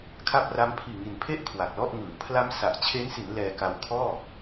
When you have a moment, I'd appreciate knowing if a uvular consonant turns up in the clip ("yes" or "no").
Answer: no